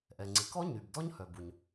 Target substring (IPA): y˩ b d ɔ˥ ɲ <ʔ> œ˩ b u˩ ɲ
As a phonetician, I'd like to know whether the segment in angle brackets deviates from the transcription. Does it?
yes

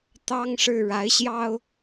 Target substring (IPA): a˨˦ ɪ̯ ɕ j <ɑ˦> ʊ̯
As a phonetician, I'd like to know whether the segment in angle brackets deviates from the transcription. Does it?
no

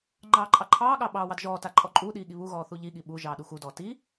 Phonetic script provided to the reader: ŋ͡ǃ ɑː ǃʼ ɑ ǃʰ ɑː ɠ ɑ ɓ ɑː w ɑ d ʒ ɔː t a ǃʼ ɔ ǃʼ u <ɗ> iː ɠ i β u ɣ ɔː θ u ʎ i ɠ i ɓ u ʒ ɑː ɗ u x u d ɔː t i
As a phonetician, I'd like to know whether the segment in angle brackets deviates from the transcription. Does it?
no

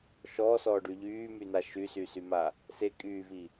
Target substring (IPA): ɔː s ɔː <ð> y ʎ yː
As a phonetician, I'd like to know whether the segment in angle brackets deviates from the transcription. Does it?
yes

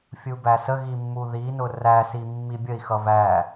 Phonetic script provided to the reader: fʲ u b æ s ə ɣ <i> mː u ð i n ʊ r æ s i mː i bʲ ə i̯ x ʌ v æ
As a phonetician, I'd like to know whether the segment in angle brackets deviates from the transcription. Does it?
no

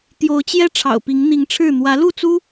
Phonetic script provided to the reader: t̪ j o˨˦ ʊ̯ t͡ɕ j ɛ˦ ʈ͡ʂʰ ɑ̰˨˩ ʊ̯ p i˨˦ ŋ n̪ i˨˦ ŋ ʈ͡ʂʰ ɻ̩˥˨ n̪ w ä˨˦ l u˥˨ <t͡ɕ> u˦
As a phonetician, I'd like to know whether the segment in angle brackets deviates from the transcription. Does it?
yes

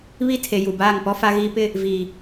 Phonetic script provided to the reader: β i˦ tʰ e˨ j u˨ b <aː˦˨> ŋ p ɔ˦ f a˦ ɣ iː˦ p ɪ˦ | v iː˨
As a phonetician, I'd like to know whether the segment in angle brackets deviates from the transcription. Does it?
no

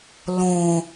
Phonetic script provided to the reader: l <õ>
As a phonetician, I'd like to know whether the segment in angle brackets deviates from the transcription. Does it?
no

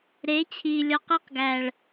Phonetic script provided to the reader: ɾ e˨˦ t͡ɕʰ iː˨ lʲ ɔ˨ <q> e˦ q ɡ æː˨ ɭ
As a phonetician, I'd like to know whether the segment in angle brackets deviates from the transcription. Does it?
no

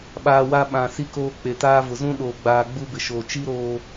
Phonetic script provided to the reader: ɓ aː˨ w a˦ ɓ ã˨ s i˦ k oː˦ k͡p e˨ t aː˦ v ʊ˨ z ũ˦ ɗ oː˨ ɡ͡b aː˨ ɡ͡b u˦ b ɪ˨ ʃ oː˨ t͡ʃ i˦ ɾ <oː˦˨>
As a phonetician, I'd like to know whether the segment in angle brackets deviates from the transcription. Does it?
yes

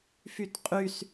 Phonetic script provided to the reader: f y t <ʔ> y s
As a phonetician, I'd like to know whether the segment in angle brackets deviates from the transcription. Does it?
yes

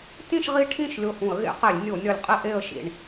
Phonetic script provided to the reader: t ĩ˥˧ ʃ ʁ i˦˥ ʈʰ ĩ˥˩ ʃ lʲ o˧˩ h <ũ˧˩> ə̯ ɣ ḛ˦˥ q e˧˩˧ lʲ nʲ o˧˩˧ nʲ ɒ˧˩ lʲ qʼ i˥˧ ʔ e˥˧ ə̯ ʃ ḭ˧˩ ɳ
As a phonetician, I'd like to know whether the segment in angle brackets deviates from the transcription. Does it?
yes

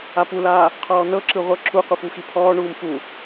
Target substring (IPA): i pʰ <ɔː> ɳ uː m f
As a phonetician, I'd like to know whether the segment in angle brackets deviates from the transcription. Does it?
no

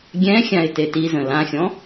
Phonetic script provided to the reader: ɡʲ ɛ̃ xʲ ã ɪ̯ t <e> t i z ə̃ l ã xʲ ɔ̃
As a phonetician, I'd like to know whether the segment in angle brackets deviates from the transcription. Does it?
no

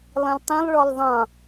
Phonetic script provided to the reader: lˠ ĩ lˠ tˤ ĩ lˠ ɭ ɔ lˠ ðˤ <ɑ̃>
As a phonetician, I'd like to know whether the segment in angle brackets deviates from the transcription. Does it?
no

